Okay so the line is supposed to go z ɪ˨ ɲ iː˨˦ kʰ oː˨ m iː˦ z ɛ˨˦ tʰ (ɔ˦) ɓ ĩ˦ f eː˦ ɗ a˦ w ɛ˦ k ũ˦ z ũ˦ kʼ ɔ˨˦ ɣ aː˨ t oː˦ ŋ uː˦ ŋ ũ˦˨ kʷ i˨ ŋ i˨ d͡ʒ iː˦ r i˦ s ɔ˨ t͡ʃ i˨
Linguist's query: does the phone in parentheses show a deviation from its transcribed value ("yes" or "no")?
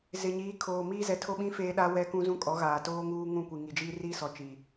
yes